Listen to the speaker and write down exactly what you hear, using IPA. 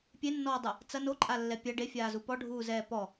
pʲenːɔːdˤɐ | t͡sɐ noǃʼalːɛ pʲɐ ɖefʲaːzu pɔɖʱuːzɛː pɔ

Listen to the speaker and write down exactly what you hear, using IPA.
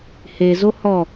hezo hɔ

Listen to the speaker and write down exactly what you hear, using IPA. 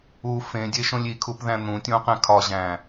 u fẽdʲeʃõlʲ ikʰupðæ̃ n̪ũtʲõqẽ kʰɒʑæ̃

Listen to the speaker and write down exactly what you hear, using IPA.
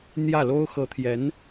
n̪jä˥˩lo˥ʊ̯ xɤ˧˥t̪ʰjɛ˧˥n

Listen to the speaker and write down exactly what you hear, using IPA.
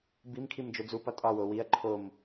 bim kʰimd͡ʒod͡zupɒ tʼɒwo wiɐ̯ ǃʰom

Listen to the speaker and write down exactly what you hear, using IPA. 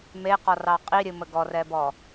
meqɔrɑ qʼiɾʲɨ məɡɔrɛbɔ

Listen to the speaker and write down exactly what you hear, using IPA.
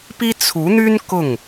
pi˥ t͡sʰu˧˥n̪y˥n kʊ˥˩ŋ

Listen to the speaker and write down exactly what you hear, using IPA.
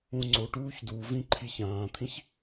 ũŋ͡ǀoʈuːç duvĩ ǃʰiçãːt̪ʰĩç

